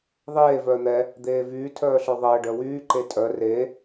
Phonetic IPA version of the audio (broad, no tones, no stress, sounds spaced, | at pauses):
ðˤ eː v œː n̪ ɛ | d̪ eː v yː tʰ œː ɬ œ ðˤ əː ɖ œ w yː ǃ e tʼ œ r e